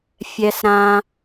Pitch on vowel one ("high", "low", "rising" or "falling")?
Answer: high